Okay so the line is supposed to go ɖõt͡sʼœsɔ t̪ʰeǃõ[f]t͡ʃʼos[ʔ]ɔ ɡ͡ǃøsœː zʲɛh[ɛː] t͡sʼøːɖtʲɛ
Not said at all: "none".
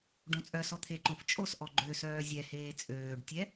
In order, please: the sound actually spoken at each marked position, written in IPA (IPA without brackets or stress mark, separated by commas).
f, ʔ, eː